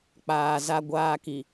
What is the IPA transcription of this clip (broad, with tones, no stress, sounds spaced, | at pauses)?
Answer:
k͡p aː˨ z a˦ ɡʷ aː˦ k i˨